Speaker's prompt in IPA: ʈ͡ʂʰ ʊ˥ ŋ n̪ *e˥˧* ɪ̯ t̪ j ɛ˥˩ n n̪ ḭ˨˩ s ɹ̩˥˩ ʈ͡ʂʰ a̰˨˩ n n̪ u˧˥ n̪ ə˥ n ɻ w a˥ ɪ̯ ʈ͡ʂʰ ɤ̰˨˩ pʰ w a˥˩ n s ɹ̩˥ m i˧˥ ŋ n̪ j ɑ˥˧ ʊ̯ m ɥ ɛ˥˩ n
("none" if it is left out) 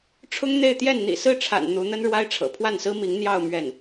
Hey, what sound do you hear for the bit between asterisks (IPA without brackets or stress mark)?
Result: e˥˧